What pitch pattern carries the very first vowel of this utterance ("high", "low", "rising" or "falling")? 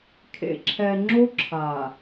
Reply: low